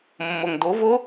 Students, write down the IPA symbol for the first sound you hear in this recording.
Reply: mː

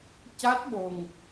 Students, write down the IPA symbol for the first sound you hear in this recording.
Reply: c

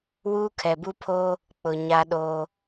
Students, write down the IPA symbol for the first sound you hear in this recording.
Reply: w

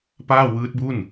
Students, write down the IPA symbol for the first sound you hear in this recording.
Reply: p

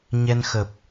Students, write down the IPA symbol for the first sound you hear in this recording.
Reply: ɲ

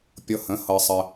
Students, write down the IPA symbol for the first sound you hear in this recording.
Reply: pʲ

